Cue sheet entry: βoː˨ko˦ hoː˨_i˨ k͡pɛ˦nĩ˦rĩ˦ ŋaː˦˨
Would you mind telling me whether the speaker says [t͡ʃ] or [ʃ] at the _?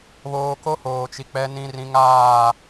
t͡ʃ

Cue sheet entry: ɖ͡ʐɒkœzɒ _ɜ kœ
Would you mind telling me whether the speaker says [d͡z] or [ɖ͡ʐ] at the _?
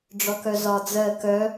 d͡z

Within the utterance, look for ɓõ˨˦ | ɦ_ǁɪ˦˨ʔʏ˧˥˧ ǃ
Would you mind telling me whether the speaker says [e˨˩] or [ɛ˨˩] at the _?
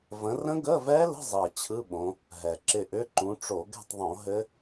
ɛ˨˩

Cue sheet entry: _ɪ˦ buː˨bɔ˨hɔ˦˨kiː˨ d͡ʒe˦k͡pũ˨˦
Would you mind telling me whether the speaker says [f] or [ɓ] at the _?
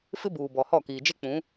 f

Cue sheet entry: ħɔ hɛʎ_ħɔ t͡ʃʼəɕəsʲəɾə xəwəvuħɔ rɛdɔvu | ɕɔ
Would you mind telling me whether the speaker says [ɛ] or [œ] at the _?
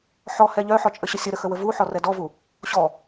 œ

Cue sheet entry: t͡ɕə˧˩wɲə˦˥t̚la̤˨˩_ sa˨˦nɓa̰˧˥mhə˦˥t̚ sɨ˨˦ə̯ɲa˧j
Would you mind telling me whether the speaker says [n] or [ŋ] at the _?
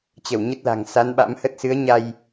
ŋ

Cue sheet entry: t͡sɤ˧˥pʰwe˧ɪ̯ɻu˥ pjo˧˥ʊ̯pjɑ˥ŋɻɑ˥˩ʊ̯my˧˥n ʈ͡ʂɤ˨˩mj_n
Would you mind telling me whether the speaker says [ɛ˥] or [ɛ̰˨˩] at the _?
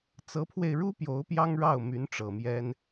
ɛ˥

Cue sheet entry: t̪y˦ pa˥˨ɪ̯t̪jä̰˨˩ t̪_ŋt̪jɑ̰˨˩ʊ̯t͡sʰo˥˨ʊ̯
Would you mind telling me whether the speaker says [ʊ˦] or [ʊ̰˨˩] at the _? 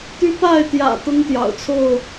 ʊ˦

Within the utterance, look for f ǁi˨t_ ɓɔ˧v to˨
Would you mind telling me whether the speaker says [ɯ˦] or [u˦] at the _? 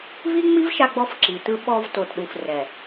ɯ˦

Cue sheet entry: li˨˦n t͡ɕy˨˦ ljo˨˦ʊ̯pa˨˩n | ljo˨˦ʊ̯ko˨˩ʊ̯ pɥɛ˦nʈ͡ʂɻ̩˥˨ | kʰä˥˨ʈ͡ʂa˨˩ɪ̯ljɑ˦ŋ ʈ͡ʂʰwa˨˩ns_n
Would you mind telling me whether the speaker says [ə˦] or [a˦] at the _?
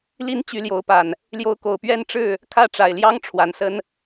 ə˦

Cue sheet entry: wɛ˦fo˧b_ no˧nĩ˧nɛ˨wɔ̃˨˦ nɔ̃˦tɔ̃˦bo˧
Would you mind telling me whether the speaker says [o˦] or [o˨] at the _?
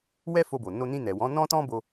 o˨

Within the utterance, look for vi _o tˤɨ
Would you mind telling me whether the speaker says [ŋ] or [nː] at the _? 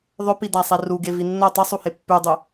nː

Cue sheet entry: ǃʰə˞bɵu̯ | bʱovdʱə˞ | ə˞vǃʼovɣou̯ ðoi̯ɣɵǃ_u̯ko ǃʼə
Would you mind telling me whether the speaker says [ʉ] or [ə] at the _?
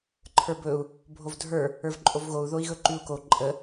ʉ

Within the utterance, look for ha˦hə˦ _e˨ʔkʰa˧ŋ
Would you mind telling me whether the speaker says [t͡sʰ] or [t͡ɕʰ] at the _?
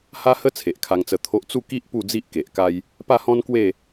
t͡sʰ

